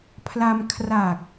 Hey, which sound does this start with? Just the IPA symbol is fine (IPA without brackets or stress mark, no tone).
pʰ